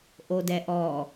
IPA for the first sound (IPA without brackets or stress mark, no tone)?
ʔ